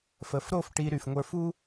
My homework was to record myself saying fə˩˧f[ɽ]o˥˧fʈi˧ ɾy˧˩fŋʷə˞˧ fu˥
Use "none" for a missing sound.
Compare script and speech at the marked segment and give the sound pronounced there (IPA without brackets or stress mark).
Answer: ɾ